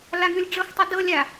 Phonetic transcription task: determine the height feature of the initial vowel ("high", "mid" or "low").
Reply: low